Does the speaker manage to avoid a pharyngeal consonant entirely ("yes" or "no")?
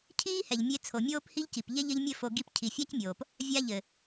yes